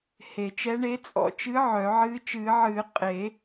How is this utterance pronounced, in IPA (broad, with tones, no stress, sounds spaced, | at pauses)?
h e˨˩˦ t͡ʃ ɛ˧˥ ɳ e˧˥ t͡sʼ ɔ̰˨˩˦ t͡ʃ ɨ˧˥ ʕ œ˨˩˦ ʕ ɨː˧˥ t͡ʃ ɨː˨˩˦ ʕ ɨː˨˩˦ qʼ e˨˩˦